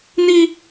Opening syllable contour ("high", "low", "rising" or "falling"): high